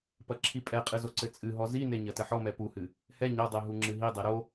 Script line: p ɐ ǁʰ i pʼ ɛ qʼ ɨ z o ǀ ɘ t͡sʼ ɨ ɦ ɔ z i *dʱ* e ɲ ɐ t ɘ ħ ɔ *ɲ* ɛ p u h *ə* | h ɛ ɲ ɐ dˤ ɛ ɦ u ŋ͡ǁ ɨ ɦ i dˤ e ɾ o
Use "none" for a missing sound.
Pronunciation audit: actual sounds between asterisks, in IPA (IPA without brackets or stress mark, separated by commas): n, m, ɨ